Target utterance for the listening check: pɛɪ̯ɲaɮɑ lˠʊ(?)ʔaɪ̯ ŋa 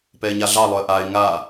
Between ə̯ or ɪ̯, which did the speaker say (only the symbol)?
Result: ə̯